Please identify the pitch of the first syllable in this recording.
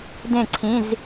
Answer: falling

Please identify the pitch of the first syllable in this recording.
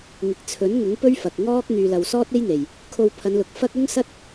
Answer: low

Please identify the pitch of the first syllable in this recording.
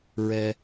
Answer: low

